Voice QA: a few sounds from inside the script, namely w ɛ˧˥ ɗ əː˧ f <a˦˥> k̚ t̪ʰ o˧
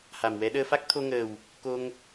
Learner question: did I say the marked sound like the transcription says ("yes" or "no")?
yes